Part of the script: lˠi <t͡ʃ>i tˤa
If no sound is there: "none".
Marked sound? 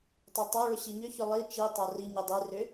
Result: t͡ʃ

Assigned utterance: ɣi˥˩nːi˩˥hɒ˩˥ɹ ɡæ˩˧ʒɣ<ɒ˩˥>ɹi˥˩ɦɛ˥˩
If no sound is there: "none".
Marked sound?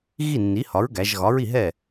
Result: ɒ˩˥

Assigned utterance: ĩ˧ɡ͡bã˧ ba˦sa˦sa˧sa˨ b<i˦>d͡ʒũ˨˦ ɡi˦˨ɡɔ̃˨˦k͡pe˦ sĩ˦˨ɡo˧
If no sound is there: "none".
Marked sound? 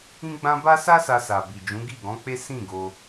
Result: i˨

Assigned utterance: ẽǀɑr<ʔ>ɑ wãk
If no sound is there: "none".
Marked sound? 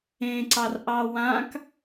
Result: ʔ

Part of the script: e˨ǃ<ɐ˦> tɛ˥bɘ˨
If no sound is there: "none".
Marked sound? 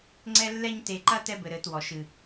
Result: ɐ˦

